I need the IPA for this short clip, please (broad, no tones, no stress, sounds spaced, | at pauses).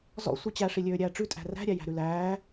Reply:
z ɔ̰ sʷ i t͡ɕ æ ʂ i lʲ øː ɾʲ æː ʈ͡ʂ ʉ tʼ æ̤ r æ̤ ɾʲ æ j æ̤ ɾ ʉ l æː